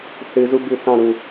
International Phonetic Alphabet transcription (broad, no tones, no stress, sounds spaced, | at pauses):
θ ɨ z u b ʉ θ ɑ̃ ɾ u